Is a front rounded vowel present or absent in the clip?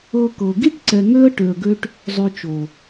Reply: present